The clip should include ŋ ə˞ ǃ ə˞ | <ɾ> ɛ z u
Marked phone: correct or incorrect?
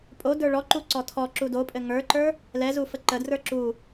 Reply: incorrect